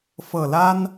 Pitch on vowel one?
low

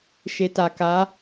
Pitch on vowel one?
low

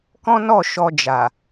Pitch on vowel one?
high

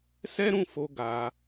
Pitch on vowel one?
high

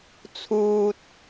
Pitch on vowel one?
low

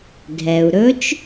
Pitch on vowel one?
low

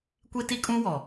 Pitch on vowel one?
high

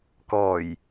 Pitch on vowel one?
low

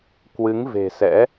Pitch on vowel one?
rising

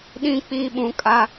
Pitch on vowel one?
falling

